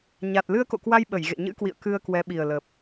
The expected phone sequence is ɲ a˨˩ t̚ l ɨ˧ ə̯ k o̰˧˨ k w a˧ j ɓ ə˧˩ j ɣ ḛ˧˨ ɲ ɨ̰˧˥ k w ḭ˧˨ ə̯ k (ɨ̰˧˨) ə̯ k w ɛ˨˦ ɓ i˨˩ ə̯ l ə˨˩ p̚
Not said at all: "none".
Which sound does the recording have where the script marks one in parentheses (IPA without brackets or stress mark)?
ɨ˧